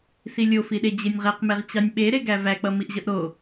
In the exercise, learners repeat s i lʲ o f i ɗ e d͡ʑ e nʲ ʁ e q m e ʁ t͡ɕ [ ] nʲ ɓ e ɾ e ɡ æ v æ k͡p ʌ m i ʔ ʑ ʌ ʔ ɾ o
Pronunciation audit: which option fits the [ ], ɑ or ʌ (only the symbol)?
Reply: ɑ